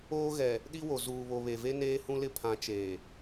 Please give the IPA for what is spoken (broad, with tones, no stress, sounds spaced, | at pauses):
oː˦ ɣ ɛ˨ | ɗ i˦ w o˨ z uː˨ β o˨ β e˨ v e˦ n eː˦ h ũ˦ l ɪ˦ pʰ ã˨˦ t͡ʃ eː˨